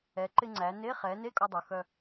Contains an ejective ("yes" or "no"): yes